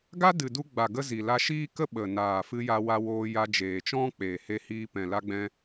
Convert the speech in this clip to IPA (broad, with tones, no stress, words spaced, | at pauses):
ɡa˦dɨ˨ du˧ɡ͡ba˨ɡə˧ zi˨la˧ʃiː˦kə˦ ɓə˨ naː˨fɨ˧ja˧wa˧ woː˧ ja˧d͡ʒeː˨t͡ʃɔ̃˦ k͡peː˨he˧hiː˧ pɛ̃˨la˧ɡ͡bɛ̃˧